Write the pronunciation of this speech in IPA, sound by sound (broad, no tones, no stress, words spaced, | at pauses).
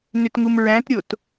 nʏtŋumɹæ̃tɾʲot